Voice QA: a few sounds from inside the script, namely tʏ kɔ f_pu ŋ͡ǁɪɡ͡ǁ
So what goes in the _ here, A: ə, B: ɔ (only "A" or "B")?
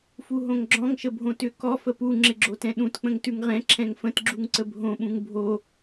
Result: A